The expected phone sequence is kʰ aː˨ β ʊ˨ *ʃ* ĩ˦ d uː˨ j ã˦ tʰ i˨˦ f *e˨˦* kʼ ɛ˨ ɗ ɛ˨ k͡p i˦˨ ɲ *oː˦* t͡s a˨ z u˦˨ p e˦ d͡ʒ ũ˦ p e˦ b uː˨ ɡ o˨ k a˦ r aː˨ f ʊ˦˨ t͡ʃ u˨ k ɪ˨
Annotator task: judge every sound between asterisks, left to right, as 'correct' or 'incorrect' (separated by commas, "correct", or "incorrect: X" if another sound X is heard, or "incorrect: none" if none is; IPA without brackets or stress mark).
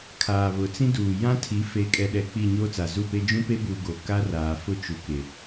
incorrect: t͡s, correct, correct